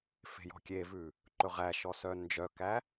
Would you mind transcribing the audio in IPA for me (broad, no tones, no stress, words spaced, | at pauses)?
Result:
fe̤jɔ̤kʲevʉ | ǃɵʁæ ʃɔsœnd͡ʒœkæ